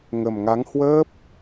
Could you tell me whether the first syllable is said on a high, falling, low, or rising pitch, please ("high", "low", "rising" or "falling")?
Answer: low